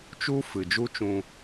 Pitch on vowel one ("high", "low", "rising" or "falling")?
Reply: high